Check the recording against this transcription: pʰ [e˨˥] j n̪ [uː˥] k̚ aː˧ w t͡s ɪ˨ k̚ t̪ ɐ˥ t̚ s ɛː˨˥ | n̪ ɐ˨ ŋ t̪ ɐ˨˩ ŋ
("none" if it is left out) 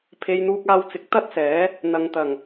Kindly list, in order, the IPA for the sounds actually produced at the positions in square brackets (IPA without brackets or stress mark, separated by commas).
e˨˧, uː˧